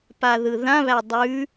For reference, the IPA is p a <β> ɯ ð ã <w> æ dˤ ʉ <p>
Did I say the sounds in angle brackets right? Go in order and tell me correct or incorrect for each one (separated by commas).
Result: incorrect, incorrect, incorrect